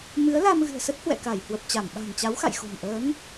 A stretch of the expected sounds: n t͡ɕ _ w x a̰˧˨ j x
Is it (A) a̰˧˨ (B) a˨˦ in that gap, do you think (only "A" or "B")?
B